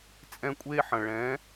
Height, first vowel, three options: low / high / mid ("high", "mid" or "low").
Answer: mid